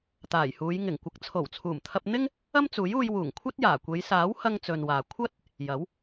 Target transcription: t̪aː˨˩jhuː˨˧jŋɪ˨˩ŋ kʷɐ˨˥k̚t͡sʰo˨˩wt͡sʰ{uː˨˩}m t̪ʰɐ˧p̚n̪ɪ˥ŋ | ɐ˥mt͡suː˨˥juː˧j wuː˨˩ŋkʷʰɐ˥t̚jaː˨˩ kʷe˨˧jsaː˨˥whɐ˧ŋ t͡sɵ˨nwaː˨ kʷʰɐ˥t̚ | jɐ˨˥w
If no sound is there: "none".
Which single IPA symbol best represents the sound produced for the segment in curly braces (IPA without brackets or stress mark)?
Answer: uː˨˩